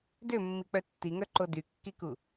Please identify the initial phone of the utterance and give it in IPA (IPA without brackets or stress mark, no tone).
d